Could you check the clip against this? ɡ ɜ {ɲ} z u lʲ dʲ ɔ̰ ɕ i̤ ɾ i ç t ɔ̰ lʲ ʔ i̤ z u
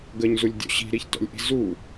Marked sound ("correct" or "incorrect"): correct